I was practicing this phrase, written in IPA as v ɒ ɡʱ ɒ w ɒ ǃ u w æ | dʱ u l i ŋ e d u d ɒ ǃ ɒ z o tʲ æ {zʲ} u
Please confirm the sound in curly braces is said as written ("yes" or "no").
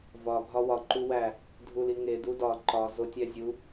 yes